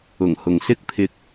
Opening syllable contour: low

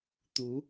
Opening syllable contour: rising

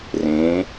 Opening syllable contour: rising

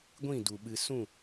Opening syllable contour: falling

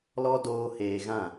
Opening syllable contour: high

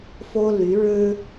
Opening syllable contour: high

